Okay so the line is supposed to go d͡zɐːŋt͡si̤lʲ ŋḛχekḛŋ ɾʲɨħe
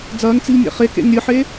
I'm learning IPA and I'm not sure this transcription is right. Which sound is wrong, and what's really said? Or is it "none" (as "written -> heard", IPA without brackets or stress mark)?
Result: none